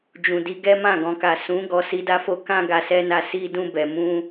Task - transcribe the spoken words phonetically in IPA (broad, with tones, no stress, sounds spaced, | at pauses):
d͡ʒ ũ˨ d i˨˦ ɡ ɛ˦ m ã˦˨ ɡ ɔ̃˨ k a˨ s ũ˨˦ ɡ ɔ˧ s i˦ d a˦ f o˦ k ã˦ ɡ a˧ s ɛ˦ n a˦˨ s i˧ d ũ˧ b ɛ˨ m ũ˧